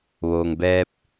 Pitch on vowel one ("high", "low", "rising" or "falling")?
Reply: low